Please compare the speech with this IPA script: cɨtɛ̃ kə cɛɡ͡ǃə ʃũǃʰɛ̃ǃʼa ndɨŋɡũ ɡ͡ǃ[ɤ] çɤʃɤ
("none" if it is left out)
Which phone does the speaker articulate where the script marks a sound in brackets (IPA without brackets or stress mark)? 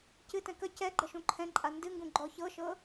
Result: ɔ